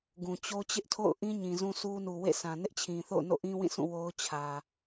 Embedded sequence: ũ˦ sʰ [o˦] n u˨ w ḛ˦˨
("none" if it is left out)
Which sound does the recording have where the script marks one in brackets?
u˦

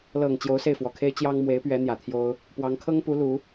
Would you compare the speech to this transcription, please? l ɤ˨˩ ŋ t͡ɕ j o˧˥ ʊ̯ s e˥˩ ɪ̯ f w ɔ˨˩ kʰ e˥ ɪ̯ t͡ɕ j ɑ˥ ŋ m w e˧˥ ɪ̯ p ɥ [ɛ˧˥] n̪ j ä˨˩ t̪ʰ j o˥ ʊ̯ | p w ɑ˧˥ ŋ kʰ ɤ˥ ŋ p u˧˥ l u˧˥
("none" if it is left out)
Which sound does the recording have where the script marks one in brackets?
ɛ˧˥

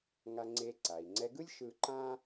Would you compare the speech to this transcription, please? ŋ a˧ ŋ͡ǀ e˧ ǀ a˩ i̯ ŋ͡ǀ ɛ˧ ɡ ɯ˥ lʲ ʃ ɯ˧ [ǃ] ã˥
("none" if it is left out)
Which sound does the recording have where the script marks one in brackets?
ǃ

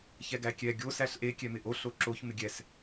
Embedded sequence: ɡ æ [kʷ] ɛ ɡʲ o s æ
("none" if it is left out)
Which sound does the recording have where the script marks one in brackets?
kʲ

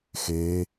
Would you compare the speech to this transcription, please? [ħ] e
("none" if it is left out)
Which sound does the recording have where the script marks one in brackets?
x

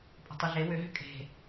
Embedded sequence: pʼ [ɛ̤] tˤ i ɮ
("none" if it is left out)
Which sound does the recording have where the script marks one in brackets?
ə̤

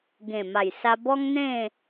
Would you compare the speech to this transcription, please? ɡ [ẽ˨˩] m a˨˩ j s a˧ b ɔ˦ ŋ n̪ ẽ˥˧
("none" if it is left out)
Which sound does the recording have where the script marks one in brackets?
ẽ˨˩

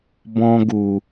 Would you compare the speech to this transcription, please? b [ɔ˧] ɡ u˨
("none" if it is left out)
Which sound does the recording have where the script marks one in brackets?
ɔ̃˧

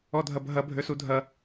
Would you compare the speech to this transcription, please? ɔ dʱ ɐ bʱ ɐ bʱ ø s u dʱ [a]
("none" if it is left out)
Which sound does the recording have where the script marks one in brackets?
ɐ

